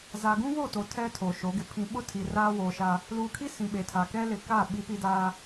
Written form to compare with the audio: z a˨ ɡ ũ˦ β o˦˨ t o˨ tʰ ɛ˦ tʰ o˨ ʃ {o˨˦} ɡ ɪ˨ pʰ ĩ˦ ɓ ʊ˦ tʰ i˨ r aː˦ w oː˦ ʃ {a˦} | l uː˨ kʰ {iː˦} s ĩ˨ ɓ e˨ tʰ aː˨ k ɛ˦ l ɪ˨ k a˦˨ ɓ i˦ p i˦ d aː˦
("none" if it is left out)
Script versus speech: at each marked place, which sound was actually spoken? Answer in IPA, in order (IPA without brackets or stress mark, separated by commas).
o˨˦, a˦, i˦